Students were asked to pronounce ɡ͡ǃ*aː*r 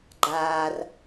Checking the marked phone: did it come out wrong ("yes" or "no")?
no